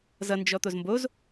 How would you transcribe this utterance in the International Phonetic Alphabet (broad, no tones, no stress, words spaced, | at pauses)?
zʌ nd͡ʒɔt̪ozmboz